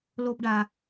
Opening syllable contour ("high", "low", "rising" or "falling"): high